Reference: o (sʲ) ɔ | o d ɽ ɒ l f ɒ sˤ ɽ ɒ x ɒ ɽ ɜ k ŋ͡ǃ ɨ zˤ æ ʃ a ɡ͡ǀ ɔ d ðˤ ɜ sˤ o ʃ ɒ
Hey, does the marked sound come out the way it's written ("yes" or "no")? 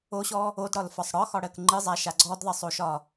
no